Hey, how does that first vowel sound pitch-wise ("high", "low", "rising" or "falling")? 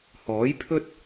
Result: rising